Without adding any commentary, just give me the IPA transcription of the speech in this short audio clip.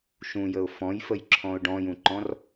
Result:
ʃũjəʊ̯ fɔ̃jfəjǁʰɔ̃ʊ̯ ɖɔ̃jũǃɔ̃r

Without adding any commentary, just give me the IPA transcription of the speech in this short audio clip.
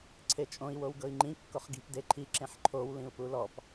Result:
ǀʰet͡ʃʼõi̯ wowɡɤi̯ŋ͡ǃĩ kːoχɡi̤p deǃʰi ǁẽħǃʰow lĩu̯pulɔp

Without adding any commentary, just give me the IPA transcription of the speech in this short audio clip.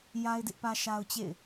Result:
ja˦ɪ̯dɪ˦ʔpä˦ ʃa˦ʊ̯t͡ɕḛ˦˨ɪ̯

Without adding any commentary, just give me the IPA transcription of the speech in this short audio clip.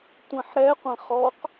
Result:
tʷɛ̃ħɾɛqʷɛ̃ χɔq

